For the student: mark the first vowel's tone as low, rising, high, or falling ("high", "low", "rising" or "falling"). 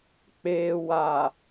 low